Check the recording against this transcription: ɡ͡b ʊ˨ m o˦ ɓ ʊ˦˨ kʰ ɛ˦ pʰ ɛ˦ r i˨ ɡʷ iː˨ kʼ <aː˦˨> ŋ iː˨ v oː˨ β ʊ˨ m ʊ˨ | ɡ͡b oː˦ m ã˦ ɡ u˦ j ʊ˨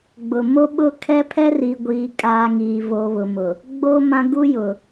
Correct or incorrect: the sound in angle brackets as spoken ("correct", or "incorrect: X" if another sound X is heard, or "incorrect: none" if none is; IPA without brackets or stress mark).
incorrect: aː˨